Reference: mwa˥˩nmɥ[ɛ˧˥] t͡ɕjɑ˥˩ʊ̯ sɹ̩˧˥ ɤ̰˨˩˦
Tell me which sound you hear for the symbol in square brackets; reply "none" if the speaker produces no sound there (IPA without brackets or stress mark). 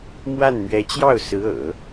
ɛ˧˥